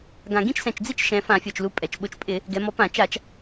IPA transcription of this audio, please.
ɡ ã˨˩ ɡ ĩ˥˧ t͡ʃ s ɛ̃˨˩ t͡ʃ d͡z i˥˧ t͡ʃ ʃ ɛ̃˩˧ f ã˧˩˧ fʲ ɔ˨˩ t͡ʃ l u˨˥ pʼ ɛ˨˩ t͡ʃ ɓ ʊ˥˧ t͡ʃ pʼ ɪ˧˩˧ | ɡ ɛ˩˧ m ɔ˨˥ p ã˧˩˧ t͡ʃ a˧˩˧ t͡ʃ

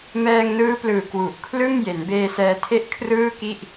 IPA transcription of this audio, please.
m ɛː˧ ŋ n ɯː˦˥ p l ɯː˨˩ k w u˨˩ ʔ kʰ l ɯ˥˩ ŋ j e˩˦ n b eː˧ s ɛː˧ tʰ e˥˩ ʔ kʰ r ɯː˥˩ k i˥˩ ʔ

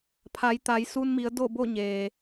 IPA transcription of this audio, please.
pʰ a˩˧ j t̪ a˩˧ j s u˧ n m i˩˧ ə̯ d o˥˨ b o˥˨ ɲ eː˩

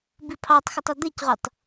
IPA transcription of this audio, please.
b i pʰ ɑ tˤ x ʌ tˤ ʊ d̪ ɪ c ʁ u tˤ

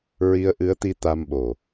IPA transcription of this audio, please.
ɹ i˧ ə̯ ʔ ɨ˧˥ ə̯ t̪ i˧ t̪ a˧ m ɓ o˨˩

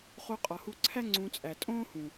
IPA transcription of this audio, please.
χ o˧ qʼ ɒ˨ h u˧ ǀʰ æ˦ ŋ͡ǀ ũ˧ t͡sʼ æ˨ tʼ õː˦ h ũ˨

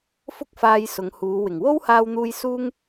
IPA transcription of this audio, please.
f ʊ˥ k̚ f aː˧ j s ʊ˨˧ ŋ h uː˨˧ w ɪ˨˩ ŋ w o˥ w h aː˧ w n̪ uː˧ j s uː˥ ŋ

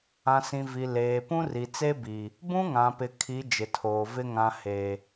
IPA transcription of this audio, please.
ã˨ s ĩ˨ v i˨ l eː˨ p ũ˦ r i˨ t͡s e˦ b i˨ | b ũ˦ ŋ ã˨ p ɪ˨ kʰ i˨˦ d͡ʒ ɪ˨ tʰ oː˨ v ɪ˦ ŋ ã˨ h e˨

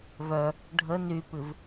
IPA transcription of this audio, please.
v œ | ɖʱ ə n y p ɨ v

